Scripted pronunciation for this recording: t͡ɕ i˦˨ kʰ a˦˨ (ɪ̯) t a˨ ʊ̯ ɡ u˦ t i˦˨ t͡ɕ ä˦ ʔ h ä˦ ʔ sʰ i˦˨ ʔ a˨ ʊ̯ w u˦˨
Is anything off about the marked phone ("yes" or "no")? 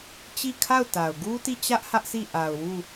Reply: yes